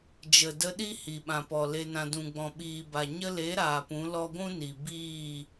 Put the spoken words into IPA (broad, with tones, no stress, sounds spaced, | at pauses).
d͡ʒ ə˨ d ə˧ ɗ i˦ h i˨ ɓ ã˨ p ɔ˨ l e˧ n ã˧ d ũ˨ ɡ͡b ɔ̃˨ ɓ iː˨ b a˨ ɲ ə˧ l e˨˦ ɾ aː˨ p ũ˨˦ l ɔ˧ ɡʷ ũ˦ n i˨ b iː˦˨